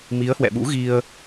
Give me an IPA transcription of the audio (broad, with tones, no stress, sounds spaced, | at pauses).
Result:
m i˨˦ ə̯ h w ɛ̰˧˨ ɓ ṵ˧˥ ɣ i˧ ə̯